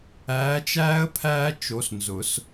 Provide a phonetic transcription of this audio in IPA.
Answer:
æː˨˦t͡ʃæː˦ə̯ pʰæː˦ t͡ʃo˨˦snzʊ˨˩˦s

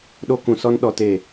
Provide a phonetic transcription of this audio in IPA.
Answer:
ɗo˧kũ˨sɔ˧n ɗɔ˧te˦˨

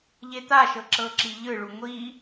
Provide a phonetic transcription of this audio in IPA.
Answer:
ʎet̪aʃɤ ǁɤǁiʎɯɭu ŋʷi

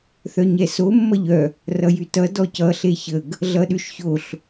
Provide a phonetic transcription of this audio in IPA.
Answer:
θœɲɛso mːʌʎœ | rʌjytʌ dɔcʌ ɬeçəɡ | ɮʌɗʉʃçoɬ

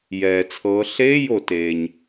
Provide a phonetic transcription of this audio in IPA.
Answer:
jɛː˩t͡sʰɤː˩˧ ɬeː˧˥˧jo˩ teː˩ɲ

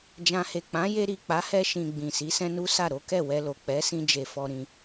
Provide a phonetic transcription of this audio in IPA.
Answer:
d͡ʒã˨he˨ k͡pã˨˦je˧ɾi˨ k͡pa˨˦ hɛ˧ʃĩ˨ ɡ͡bĩ˨ si˨˦sɛ̃˦nu˦sa˦˨ ɾo˨˦kɛ˦˨wɛ˧lo˨ k͡pɛ˨˦sĩ˧ d͡ʒe˧fɔ˧ɾĩ˧

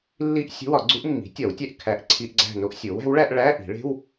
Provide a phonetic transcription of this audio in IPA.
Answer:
lːi˥ʔ sʲo̤˧˥˧wɒ˨˩˦ɡ͡ǀu˧˥ʔ mːi̤˩˥tʲɒ˨˩˦wtʲæ˦˨ʔ kʰæ˧˥˧ʔ ǀʰi˧˥˧ʔɡ͡ǀæ̤˦˨no˥ʔsʲo˩˥w æ̤˩˥wɭæ˥ʔ ɭæ˧˥˧ʔi̤˨˩˦ɭe̤˧˥˧w

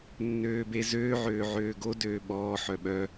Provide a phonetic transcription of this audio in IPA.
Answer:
nːøːbezøː ʕøːʕøːɡo døːɓɔː ħœɓœ

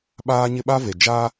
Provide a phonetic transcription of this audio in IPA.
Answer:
ɓaː˦ɲɪ˦ɓa˦ve˨ d͡ʒa˦

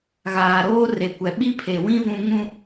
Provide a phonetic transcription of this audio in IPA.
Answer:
ɣaː˨ɾoː˦re˨kʷɛ˨ ɓi˦pʰe˨wĩ˦ vũ˦ŋũ˦

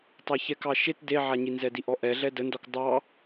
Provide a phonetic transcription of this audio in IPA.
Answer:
tˤaçɛkɑ ʃet deʕaɲi nzɛdiʔɔʔɛ ɮɛdəndɔk dˤɑ

